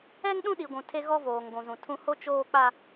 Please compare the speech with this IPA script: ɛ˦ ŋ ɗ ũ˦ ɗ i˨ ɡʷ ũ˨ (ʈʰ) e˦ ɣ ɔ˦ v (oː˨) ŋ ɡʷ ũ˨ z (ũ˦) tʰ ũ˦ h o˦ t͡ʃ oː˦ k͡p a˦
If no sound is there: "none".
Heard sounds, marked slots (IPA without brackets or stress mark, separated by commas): tʰ, oː˨, ũ˨